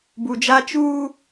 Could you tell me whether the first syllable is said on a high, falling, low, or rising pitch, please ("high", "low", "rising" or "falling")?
low